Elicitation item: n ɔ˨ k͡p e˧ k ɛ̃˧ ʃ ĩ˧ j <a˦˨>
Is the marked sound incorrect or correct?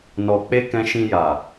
incorrect